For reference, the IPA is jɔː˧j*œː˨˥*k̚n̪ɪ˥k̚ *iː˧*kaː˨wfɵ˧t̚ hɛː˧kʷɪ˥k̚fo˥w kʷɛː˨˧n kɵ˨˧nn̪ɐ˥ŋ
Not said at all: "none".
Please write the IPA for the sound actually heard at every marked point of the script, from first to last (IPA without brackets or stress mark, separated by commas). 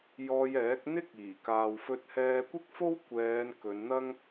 ɛː˨˥, iː˨˩